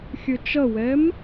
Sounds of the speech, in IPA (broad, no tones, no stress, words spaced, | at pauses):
xʲɵt͡ʃʌwɛm